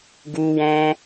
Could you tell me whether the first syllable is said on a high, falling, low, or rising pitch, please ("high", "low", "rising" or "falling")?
high